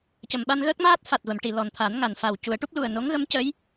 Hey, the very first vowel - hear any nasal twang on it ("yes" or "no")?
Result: no